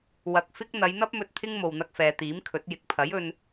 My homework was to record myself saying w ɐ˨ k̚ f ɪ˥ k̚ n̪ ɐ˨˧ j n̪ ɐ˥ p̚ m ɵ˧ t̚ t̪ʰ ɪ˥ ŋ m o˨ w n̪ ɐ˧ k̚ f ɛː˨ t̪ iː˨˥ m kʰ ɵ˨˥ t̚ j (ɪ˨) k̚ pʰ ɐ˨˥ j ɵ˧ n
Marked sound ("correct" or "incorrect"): correct